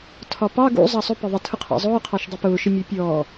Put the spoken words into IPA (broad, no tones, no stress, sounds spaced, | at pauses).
tʰ ɒ p ɑ ɡ ṵ zˤ ɑ sˤ ʊ p ɪ ðˤ ɪ tʰ ʊ qʰ ɑ̰ zˤ ʊː qʰ ɑ ʃ dˤ i p ʊː ʃ ɪ mʲ ɜ pʲ ɔː